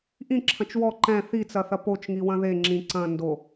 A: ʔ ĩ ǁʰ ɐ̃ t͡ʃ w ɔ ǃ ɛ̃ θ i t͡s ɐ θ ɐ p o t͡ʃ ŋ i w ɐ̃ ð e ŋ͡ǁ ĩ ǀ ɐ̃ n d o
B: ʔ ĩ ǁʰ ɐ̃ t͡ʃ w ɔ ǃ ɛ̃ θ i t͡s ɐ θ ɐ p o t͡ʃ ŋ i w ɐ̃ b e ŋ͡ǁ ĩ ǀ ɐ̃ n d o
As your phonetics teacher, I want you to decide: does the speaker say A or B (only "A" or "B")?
A